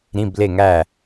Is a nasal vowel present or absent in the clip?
present